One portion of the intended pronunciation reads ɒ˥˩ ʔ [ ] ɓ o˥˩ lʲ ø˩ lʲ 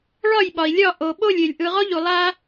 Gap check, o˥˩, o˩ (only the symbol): o˩